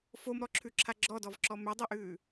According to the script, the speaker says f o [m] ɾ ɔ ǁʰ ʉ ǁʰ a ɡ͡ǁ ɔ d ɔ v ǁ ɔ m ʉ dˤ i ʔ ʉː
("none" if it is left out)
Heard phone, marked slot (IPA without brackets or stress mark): m